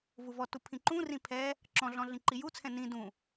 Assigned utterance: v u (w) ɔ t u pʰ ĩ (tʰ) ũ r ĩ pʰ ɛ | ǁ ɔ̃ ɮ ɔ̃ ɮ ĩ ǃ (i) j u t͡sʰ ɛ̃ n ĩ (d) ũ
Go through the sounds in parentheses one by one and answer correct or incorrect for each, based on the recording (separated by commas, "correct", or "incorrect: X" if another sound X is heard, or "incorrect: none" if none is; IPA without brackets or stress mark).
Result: incorrect: v, incorrect: ǃ, correct, correct